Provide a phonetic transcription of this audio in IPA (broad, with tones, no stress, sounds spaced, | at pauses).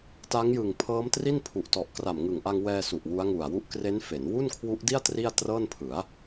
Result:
t a˦˥ ŋ j ɯ˨˩ ŋ pʰ ɤː˦˥ m t r i˥˩ n pʰ u˨˩ ʔ t ɔ˨˩ ʔ k r a˨˩ m ŋ ɯ˨˩ ŋ ʔ a˧ ŋ w ɛː˧ s u˨˩ ʔ w u˦˥ a̯ ŋ u˨˩ a̯ w u˥˩ ʔ k r e˦˥ n f e˩˦ n w u˥˩ n kʰ w u˦˥ ʔ d i˥˩ a̯ t r i˥˩ a̯ t r ɤː˥˩ n pʰ ɯ˩˦ a̯